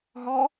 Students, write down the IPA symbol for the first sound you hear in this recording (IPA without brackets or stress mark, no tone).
ɦ